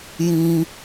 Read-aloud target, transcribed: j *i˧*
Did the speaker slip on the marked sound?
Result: yes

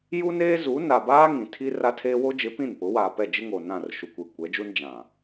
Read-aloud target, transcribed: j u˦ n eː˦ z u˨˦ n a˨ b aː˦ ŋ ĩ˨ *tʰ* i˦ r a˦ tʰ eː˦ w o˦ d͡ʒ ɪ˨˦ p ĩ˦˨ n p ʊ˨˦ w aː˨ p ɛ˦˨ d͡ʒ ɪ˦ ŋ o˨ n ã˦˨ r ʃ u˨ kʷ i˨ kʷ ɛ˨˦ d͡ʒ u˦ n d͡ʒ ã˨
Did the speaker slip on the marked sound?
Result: no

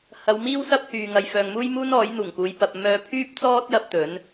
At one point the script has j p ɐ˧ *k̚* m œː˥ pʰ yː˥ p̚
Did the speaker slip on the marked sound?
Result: yes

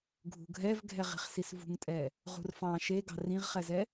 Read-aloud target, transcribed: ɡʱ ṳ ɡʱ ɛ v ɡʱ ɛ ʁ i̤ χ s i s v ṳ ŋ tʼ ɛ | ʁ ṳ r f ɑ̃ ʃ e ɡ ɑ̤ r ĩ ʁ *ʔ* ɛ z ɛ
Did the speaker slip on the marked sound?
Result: yes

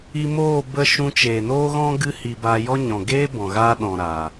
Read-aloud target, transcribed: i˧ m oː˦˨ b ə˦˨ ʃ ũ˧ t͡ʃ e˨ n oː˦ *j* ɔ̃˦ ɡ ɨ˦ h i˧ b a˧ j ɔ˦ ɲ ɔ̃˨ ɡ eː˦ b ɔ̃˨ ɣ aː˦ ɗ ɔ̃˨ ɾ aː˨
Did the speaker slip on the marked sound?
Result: yes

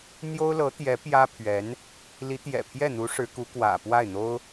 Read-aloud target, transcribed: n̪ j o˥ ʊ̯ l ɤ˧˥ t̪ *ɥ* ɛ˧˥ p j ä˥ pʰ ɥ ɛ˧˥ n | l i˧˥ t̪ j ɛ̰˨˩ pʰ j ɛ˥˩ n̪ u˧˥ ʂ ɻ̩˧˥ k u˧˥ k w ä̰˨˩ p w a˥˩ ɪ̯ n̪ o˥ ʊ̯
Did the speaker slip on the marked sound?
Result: yes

